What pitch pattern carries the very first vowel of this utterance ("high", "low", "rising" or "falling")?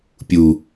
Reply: low